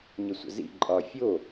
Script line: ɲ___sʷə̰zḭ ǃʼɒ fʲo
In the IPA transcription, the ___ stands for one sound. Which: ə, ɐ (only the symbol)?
ə